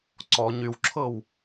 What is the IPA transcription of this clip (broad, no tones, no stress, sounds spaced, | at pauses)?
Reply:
ǀ ɔ ɲ y w ǁʰ ɤ w